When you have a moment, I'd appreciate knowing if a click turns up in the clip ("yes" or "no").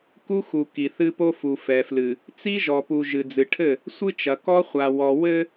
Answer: no